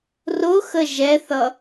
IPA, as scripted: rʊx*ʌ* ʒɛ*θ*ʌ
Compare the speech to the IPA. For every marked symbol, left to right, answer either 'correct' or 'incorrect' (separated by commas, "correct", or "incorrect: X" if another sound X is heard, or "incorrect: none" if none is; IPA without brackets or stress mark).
incorrect: ə, correct